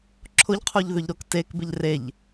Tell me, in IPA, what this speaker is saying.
ǁʰ ʊ ʎ qʰ u ʎ ð ʏ ʎ ɾ o k t e k b ɪ ʎ r e ʎ

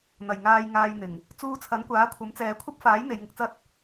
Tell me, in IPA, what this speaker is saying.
n̪ ɐ˨˩ j ŋ aː˨ j ŋ aː˨ j n̪ ɪ˨˩ ŋ | t͡s uː˧ t͡sʰ ɐ˨˥ n kʷ aː˨˥ kʷʰ ɐ˨˥ m t͡s ɛː˨˧ kʷʰ ɐ˥ p̚ f aː˨˥ j n̪ e˨˧ j ŋ ɪ˧ k̚ t͡s ɐ˥ t̚

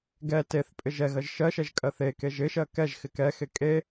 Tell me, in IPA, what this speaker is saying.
ɡ ɛ t e θ pʼ ɪ ʒ ɛ ɣ ɜ ʒ ʃ ɜ ʃ ɛ ʒ kʼ ɜ θ e k e ʒ ɪ ʃ ɜ k ɛ ʒ x ɪ k ɛ x e kʼ e

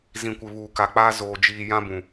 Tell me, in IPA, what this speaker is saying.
z ĩ˨ kʷ ɪ˨ β uː˨ k a˨ k͡p aː˦ z oː˨ d͡ʒ iː˨ j ã˦ b ũ˨

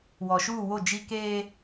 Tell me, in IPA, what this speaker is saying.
w ɔ˨ ʃ uː˦˨ w o˦˨ d͡ʒ i˦ k eː˦

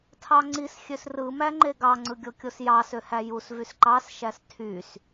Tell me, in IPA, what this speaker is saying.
tʰ ɑ ŋ͡ǀ i s xʲ ø s r ɯ m æ ŋ͡ǃ e ɡ ɑ ŋ͡ǀ ɯ ɡʲ o kʲ o s j ɑ s ø h æ j u s v y s ǃ ɑ s ʃ æ s tʰ y s

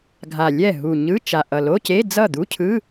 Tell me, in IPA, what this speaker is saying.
ɡʱ a˨˩ lʲ ɛ˥˩ ɦ u˨˩ ɲ ɯ˧˥˧ t͡ʃ a˨˩ ʔ ʌ˨˩ l o˧˥˧ c e˧˥˧ d͡z ʌ˥˩ d̪ u˧˥˧ cʰ ɯ˧˥˧

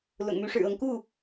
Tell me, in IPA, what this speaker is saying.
l ʊ̰˨˩ ŋ m y˧˥ ʂ ɻ̩˨˩ ɤ˧˥ ŋ k u˥˩

